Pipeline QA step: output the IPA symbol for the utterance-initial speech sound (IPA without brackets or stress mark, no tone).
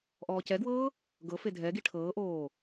ʔ